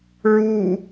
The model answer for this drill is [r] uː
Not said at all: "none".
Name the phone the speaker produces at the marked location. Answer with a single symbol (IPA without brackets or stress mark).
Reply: ɹ